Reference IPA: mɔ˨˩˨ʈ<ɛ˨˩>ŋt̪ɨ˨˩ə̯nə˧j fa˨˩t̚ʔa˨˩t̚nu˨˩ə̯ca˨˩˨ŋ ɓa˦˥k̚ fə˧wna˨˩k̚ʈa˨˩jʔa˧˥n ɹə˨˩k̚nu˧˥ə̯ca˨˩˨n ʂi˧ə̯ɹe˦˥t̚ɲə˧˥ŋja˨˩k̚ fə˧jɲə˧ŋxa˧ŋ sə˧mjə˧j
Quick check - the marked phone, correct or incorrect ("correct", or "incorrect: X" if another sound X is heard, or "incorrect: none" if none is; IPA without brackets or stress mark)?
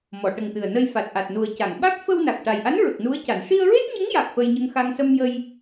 incorrect: ə˨˩